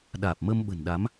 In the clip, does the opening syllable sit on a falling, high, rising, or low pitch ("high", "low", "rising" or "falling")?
low